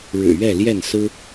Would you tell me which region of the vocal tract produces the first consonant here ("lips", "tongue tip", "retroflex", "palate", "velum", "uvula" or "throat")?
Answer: retroflex